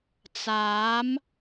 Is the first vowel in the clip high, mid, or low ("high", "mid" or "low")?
low